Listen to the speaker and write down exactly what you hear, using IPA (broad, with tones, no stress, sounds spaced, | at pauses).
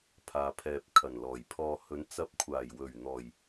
pʰ aː˨ pʰ ɛː˨ p̚ kʰ ɐ˨˩ n l ɔː˨˩ j pʰ ɔː˨ h ɵ˨˧ n t͡s ɐ˨˥ p̚ kʷʰ aː˨˩ j w ɵ˨˩ ɥ n̪ ɔː˨˩ j